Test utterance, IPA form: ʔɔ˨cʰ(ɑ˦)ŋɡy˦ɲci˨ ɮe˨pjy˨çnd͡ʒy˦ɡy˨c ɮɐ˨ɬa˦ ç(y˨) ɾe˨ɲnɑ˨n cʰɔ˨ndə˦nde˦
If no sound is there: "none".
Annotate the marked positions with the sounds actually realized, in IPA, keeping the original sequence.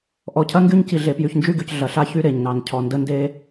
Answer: ɐ˦, y˦

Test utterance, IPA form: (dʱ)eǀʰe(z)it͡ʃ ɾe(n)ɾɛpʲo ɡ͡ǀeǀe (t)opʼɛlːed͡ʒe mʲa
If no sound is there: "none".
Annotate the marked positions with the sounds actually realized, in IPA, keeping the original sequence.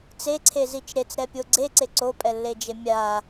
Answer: t͡s, z, t͡s, ǀ

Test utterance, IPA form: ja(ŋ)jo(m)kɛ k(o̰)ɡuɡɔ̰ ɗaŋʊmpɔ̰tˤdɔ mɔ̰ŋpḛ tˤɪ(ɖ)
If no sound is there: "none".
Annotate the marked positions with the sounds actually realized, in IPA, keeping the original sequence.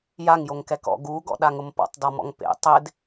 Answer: ŋ, ŋ, ɔ̰, d

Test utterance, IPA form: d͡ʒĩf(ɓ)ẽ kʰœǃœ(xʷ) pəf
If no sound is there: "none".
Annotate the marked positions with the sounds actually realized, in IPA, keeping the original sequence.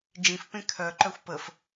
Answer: p, xʷ

